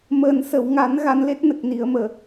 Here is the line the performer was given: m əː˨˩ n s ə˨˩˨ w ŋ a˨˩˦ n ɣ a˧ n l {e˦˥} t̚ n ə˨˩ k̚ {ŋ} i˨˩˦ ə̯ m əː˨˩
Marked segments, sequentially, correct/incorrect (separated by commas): correct, incorrect